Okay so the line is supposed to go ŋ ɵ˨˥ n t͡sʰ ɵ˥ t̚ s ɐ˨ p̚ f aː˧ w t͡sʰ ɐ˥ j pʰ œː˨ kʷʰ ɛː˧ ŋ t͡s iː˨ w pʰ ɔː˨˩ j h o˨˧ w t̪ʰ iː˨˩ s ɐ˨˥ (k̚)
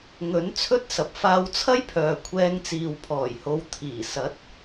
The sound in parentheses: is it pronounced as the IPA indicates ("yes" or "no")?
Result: no